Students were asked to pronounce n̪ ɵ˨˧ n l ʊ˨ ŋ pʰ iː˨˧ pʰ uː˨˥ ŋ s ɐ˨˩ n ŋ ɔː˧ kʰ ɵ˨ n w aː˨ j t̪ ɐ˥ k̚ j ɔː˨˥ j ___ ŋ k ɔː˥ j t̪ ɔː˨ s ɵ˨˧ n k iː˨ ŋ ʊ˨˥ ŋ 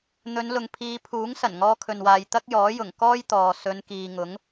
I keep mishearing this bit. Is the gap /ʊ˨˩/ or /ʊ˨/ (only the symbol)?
ʊ˨˩